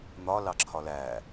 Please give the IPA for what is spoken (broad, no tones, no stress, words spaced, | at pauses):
n̪ɒ lɑǁʰɒlæ